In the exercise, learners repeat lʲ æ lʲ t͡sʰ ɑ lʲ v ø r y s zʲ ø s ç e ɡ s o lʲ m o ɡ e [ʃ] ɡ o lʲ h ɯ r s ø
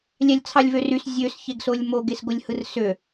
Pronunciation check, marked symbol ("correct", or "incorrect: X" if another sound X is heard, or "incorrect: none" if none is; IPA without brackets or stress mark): incorrect: s